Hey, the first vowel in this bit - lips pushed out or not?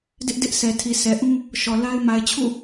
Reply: no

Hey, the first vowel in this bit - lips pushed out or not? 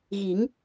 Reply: no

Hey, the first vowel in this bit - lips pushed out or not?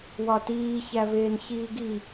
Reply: yes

